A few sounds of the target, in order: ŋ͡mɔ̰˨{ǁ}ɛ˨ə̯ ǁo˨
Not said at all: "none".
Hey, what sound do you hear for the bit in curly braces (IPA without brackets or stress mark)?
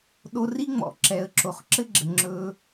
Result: ǁ